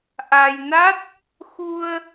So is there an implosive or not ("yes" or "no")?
no